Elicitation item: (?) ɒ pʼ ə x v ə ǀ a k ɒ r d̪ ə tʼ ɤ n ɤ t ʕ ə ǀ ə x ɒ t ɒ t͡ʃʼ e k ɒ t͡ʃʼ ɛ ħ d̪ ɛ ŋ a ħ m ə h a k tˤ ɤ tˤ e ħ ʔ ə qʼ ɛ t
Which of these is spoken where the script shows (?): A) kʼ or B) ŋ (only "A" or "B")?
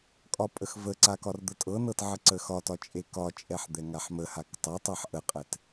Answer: A